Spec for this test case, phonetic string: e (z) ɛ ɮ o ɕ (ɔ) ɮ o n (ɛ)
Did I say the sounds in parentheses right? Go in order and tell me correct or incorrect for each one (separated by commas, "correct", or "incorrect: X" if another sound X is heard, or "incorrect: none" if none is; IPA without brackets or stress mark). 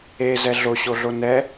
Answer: correct, incorrect: o, correct